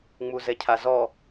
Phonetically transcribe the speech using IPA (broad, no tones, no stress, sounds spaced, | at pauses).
ŋ͡m u z ɛ cʰ a z ɔ